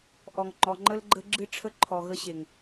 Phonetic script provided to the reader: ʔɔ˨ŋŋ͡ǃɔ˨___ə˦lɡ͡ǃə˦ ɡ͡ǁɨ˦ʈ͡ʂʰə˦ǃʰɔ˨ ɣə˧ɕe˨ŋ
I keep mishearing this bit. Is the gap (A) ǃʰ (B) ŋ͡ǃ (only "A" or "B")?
B